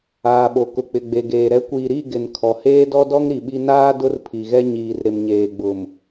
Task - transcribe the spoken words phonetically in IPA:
aː˨ ɓ o˨ k ʊ˨ k͡p ɪ˨ ɡ͡b e˨ ɡ eː˨ ɾ ɛ˨˦ kʷ iː˨ ɾ i˦˨ ɡ ɪ˨ n kʰ ɔ˨ h eː˦ d ɔ˦ d ɔ˦ ŋ ɾ i˨ ɓ i˦ n aː˦ d ʊ˦ r pʰ i˨ ɣ ɛ˦ ɲ iː˨ r ɾ ɪ˨ m ɲ eː˨ ɡ͡b ʊ˨ m

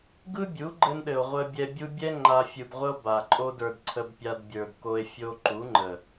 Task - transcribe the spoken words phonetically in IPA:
ɡ ɯ˦ bʲ u˨˦ ɡ͡ǃ ɘ˧ n ɗ ɘ˨ o̯ ʁʷ ə˦ bʲ ɛ˧ bʲ u˦ bʲ ɛ˦ ŋ͡ǃ a˧ fʲ ɯ˨ b ʁʷ ə˦ o̯ b a˨ ǃʼ o˦ d ə˞˧ d ǀʰ ə˧ b pʲ a˧ d bʲ ə˞˨ d k o˧ e̯ fʲ o˧ ǃ u˨˦ ŋ͡ǃ ə˨

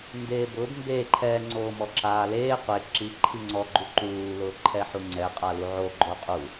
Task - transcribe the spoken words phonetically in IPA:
n d eː b ʊː b m b e ǃʰ ɛ ŋ͡ǀ oː m ɔ ǁ aː l eː qʷ e ǁ i ǃʰ i ŋ͡ǀ ɔ ɡ͡ǃ u ǃ uː l ʊː ǃʰ ɛ ħ u ŋ͡ǀ ɛ qʼ a l u ʕ o ɡ͡ǃ o qʼ u

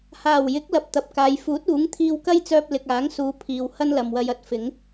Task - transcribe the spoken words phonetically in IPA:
h aː˨˩ w j ɪ˨˥ k̚ l ɐ˨ p̚ t̪ ɐ˨ p̚ k aː˨ j f uː˨˥ t̚ uː˨˥ ŋ t̪ʰ iː˧ w k ɐ˥ j t͡s œː˧ p̚ l ɪ˨ k̚ aː˨˥ ŋ s uː˨˧ pʰ iː˨ w h ɐ˥ n l ɐ˨ m w ɐ˧ j ɐ˧ t̚ f ɪ˨˥ ŋ

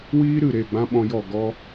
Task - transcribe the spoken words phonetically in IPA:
w iː˦ ɾ ɨ˦˨ ɾ e˦˨ ɡ͡b ã˦ ɓ ɔ̃˧ j ɔ˦˨ ɡ ɔ˧

